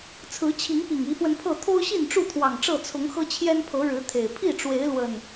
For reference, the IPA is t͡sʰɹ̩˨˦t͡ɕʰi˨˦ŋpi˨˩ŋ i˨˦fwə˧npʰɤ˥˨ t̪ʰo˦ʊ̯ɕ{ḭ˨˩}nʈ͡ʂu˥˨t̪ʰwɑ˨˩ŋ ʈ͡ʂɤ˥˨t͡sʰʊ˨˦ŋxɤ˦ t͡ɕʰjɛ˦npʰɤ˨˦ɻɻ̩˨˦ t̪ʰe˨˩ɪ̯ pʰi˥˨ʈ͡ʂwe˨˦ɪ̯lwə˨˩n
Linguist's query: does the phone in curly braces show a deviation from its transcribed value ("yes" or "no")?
yes